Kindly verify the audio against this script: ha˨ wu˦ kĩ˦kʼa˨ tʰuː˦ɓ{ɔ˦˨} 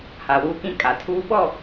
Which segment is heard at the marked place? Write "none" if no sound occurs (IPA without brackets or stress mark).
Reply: ɔ˦˨